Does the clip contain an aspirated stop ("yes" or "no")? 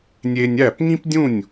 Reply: no